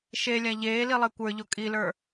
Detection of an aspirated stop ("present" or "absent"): absent